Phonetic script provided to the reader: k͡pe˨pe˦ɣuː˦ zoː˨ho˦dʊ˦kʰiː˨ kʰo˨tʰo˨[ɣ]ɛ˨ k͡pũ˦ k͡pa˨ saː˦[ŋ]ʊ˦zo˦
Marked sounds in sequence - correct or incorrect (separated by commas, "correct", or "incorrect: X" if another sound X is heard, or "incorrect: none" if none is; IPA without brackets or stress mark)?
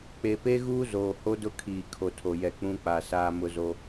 incorrect: j, incorrect: m